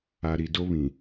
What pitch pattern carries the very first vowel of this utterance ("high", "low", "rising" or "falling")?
low